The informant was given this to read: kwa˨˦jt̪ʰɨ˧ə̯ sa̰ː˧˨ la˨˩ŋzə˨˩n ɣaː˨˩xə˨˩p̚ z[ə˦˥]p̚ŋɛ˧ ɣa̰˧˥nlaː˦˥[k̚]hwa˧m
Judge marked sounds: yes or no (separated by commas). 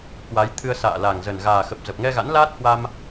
no, no